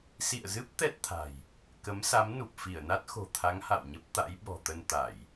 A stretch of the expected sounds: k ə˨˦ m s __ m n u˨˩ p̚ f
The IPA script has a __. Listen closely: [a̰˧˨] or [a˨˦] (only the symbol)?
a˨˦